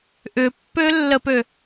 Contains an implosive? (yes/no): no